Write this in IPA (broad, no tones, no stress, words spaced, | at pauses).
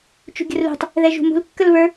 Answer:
t͡ʃṳɡʲə̤rlṳtˤ | ðɛʒṳmṳl kːəlβə˞